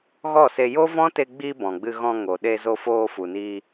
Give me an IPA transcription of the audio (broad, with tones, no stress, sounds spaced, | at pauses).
ɣ ɔ˦˨ s e˧ j o˦ v ɔ̃˦ t e˧ ɡ͡b iː˧ b ɔ̃˨ ɡ͡b ɨ˧ ɣ ɔ̃˧ ŋ o˨ ɗ e˧ z o˧ f oː˧ f u˨ n iː˧